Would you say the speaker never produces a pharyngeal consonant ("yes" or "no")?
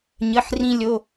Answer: no